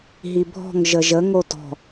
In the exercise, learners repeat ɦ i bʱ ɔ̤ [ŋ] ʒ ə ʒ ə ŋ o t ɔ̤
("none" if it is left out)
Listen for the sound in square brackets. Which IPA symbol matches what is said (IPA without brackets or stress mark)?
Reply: ŋ